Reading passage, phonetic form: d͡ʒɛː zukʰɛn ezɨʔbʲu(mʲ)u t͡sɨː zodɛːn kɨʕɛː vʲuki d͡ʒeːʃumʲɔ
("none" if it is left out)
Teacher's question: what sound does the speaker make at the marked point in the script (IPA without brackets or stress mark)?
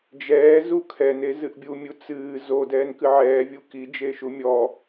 mʲ